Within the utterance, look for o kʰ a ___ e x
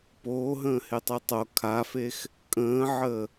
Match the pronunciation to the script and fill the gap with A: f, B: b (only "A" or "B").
A